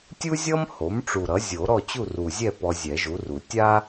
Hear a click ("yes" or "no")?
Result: no